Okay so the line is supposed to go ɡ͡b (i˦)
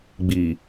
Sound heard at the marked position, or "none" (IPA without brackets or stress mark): i˨